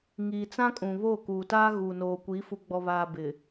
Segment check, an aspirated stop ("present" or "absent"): absent